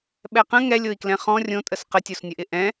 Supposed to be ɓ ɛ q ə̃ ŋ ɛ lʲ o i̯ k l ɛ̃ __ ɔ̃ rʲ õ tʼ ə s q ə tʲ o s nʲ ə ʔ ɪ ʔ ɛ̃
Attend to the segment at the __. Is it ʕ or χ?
χ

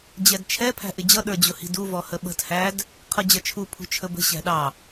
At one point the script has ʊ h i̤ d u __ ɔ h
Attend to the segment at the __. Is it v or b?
v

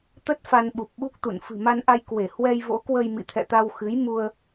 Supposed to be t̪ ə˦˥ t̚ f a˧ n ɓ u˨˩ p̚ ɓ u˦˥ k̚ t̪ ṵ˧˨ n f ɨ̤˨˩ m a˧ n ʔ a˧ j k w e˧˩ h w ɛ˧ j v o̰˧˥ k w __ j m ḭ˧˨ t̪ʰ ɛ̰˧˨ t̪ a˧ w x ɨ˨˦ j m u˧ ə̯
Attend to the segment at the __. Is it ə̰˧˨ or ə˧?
ə˧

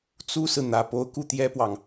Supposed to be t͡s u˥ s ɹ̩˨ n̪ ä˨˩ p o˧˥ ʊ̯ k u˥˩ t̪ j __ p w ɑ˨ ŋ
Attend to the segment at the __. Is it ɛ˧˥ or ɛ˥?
ɛ˥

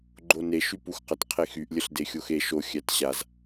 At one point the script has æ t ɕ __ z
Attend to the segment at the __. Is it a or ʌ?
a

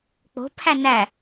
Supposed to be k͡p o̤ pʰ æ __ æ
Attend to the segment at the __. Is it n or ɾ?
n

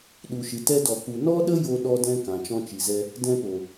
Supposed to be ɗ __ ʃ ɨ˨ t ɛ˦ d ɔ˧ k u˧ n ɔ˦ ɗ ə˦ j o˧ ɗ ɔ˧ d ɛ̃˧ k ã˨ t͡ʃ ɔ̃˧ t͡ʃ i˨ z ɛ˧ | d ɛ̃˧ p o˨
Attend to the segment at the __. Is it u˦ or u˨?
u˨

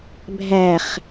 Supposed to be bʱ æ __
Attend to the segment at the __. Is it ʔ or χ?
χ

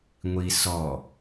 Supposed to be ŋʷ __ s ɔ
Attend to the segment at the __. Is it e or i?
i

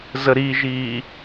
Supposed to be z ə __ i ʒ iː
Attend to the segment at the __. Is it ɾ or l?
ɾ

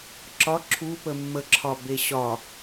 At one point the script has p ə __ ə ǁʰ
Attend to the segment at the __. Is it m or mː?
mː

